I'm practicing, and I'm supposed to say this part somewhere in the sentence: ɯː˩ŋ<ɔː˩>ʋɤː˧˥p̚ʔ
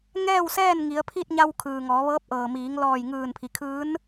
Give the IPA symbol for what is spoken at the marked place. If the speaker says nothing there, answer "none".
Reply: ɔː˩˧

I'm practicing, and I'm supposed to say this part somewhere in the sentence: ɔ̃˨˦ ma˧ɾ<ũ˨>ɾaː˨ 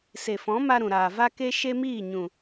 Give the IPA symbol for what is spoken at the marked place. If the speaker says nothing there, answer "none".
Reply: ũ˨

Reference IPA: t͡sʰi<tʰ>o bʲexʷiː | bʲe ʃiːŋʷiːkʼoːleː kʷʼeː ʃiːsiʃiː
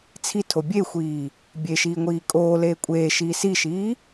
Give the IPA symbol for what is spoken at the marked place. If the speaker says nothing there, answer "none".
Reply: tʰ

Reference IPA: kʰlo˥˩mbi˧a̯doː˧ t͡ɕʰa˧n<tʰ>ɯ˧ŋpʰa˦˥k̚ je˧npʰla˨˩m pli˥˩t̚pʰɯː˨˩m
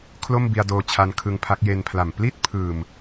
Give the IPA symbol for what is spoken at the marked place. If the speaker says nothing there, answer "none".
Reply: kʰ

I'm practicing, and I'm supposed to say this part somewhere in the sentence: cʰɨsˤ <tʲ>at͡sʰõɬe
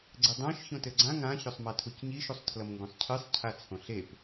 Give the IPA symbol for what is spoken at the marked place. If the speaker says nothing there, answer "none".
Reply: cʰ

